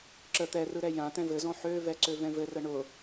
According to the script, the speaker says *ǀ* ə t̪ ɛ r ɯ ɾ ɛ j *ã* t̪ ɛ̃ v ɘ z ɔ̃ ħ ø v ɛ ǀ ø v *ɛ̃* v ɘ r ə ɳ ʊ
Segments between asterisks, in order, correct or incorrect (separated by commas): incorrect, correct, correct